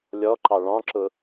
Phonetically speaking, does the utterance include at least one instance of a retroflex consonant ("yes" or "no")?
yes